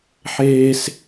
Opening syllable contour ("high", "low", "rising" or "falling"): high